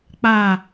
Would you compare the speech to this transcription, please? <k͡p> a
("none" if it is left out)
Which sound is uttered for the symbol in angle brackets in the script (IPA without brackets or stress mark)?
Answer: k͡p